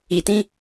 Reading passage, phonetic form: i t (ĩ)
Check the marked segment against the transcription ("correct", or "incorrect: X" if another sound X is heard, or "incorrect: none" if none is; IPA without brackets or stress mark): correct